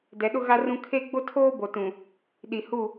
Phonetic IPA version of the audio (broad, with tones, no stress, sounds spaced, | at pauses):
d ɛ˨˦ ɗ ʊ˦ ɣ a˦ r ũ˦ kʰ e˦ ɡ͡b o˦ tʰ oː˦ b o˨ t ũ˨ | ɗ i˨ h u˦˨